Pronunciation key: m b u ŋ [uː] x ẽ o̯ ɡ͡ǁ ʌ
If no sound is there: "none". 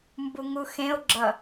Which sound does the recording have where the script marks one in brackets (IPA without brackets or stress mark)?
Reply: u